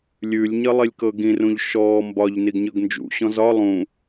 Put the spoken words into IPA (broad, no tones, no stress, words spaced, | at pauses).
lʲʉlʲ ɲʌlˠilʲkɤɡĩ rũʎʃɔː mbɒʎ niɡɲɤɡnd͡ʒṵ ɕɔ̃zɒ lˠũ